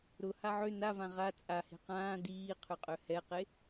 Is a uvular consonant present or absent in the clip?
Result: present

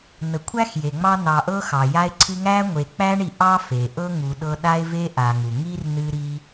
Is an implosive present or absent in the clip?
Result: present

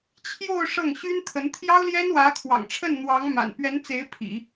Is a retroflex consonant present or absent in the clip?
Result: present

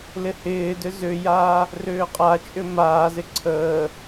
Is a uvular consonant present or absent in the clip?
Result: present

